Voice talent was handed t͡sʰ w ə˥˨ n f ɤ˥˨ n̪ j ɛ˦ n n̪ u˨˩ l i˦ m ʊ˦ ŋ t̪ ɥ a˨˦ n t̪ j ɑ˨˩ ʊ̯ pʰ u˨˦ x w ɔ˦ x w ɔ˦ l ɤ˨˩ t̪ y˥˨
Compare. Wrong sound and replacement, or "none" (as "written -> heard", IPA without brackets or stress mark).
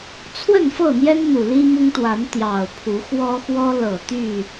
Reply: ɥ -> w